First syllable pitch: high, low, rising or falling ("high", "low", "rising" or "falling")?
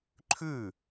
falling